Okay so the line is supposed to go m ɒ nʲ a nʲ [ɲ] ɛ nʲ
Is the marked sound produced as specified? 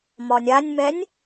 no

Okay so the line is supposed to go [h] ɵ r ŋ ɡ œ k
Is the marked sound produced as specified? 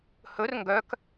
yes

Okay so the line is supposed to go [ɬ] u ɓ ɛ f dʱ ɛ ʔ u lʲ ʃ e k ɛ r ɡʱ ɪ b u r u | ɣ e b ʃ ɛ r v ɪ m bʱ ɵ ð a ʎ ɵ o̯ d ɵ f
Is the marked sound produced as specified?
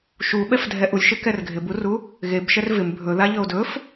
no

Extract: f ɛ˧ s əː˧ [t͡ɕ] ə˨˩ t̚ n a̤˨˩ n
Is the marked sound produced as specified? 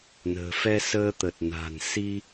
no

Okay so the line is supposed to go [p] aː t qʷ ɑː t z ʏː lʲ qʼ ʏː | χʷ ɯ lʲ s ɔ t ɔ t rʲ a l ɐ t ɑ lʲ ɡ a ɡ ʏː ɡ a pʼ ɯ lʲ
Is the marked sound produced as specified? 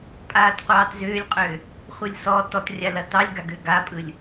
no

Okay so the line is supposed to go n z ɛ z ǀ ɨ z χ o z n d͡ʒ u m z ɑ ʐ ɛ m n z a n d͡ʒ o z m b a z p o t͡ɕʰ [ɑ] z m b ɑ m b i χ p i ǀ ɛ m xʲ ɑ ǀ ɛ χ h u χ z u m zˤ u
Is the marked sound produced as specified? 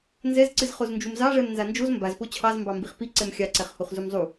yes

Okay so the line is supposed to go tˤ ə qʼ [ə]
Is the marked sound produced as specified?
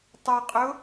no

